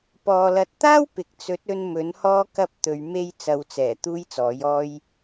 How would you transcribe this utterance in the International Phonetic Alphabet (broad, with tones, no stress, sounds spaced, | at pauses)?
p ɔː˨ l ɐ˨˥ t̚ t̪ aː˥ w p ɪ˨ k̚ t͡s ɵ˨˥ t̚ ɵ˧ n m ɵ˨˥ n h ɔː˥ k ɐ˥ p̚ t̪ ɵ˨˧ ɥ m e˧ j t͡s ɐ˨˧ w t͡s ɛː˨˩ t̪ uː˥ j t͡s ɔː˨˥ j ɔː˥ j